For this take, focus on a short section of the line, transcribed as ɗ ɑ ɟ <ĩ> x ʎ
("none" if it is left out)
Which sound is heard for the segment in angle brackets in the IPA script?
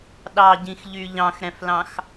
ĩ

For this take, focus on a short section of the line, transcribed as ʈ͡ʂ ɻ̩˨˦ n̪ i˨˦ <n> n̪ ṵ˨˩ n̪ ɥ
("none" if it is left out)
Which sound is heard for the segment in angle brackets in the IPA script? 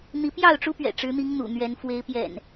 ŋ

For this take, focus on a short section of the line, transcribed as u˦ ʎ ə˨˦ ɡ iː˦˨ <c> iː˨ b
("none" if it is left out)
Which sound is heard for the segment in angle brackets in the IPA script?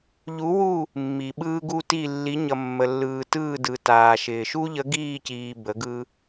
c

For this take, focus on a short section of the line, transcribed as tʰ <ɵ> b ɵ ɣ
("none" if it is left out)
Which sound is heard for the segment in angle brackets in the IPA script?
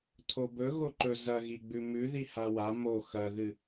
o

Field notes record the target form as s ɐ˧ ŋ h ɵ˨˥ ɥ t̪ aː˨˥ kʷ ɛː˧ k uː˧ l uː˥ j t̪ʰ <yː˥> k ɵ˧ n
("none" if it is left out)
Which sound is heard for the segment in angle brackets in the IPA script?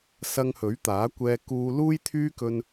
yː˥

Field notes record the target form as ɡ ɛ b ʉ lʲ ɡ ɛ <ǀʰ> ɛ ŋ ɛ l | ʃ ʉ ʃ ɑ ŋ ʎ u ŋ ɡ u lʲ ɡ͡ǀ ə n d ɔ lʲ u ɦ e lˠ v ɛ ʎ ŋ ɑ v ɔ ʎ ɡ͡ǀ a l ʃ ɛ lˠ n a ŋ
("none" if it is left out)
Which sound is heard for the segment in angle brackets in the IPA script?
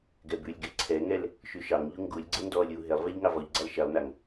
ǀʰ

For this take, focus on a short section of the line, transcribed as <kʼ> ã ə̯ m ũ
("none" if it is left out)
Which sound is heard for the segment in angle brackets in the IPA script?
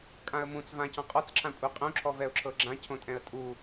kʼ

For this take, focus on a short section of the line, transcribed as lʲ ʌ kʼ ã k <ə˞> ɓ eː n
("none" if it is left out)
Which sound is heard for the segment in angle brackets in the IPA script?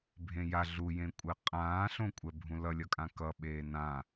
ʌ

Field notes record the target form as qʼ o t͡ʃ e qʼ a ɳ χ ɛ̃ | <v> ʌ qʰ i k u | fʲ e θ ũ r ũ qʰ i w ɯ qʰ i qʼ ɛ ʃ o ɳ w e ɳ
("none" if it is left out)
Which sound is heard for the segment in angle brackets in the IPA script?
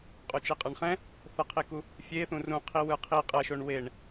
θ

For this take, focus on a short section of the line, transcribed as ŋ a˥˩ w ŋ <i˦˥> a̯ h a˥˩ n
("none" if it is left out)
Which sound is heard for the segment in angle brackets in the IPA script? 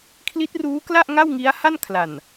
i˦˥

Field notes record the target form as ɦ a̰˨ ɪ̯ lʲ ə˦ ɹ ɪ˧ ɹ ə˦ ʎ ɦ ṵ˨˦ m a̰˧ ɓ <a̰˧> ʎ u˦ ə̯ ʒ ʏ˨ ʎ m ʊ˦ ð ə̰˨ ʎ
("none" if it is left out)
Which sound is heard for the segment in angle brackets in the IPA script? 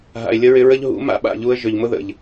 a̰˦˨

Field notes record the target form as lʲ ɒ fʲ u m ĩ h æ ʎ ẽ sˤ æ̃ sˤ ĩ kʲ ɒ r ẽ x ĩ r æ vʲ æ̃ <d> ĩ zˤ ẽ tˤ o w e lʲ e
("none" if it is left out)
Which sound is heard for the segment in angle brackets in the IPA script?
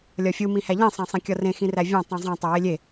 tˤ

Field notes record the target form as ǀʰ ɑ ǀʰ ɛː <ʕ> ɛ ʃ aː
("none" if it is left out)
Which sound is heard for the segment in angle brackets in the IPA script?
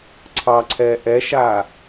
ʔ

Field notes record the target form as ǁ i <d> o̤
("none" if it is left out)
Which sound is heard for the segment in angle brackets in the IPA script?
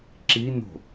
n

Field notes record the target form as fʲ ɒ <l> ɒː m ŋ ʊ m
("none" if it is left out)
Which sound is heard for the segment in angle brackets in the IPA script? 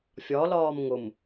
l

